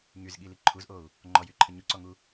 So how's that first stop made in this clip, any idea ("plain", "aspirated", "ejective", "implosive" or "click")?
implosive